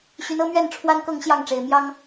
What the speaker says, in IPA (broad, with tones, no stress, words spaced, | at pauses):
ɕy˨˦nɤ˦mɥɛ˥˨n ʈ͡ʂʰwa˦nkɤ˥˨ŋ ɕjɑ˥˨ŋʈ͡ʂe˨˩ɪ̯ mjɑ˦ŋ